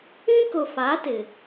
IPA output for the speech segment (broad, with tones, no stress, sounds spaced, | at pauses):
ĩ˦ k ʊ˨ f a˨˦ t ɪ˨